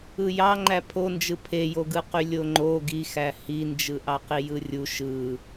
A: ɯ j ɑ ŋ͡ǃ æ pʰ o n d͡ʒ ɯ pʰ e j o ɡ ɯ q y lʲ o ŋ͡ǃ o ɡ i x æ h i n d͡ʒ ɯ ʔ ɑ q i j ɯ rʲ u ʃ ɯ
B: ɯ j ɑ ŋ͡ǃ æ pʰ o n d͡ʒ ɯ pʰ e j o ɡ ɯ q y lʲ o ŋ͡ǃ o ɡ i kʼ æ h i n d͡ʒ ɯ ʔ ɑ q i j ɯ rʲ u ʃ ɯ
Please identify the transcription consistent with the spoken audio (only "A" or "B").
A